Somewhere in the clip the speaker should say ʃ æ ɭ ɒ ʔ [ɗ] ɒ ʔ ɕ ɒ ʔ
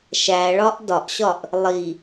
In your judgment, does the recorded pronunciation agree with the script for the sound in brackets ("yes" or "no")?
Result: no